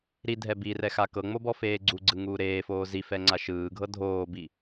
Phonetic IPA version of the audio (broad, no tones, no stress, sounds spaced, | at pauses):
ɾ i dʱ ɛ b i r ɛ x a k ɤ ŋ͡m o b ɔ f eː ɡ͡ǀ u ɡ͡ǀ ɯ ŋ uː ɾ eː f oː z i f ɛ ŋ͡ǀ a ʃ ɯː ɡʱ ɤ dʱ oː b i